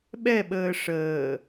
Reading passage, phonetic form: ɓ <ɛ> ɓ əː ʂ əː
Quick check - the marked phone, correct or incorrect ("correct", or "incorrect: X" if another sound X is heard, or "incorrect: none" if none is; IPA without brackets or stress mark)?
correct